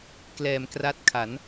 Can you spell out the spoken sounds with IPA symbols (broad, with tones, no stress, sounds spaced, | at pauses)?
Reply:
k l ɛː˩˦ m k r a˦˥ t̚ kʰ a˩˦ n